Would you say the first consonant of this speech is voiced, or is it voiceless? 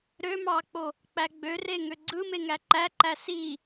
voiced